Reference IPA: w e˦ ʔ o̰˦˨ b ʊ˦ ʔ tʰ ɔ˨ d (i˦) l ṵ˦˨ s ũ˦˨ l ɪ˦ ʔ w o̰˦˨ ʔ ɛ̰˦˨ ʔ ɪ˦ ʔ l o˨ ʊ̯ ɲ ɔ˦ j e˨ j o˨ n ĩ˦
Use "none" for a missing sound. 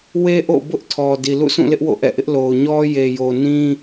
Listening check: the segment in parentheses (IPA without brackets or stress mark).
i˨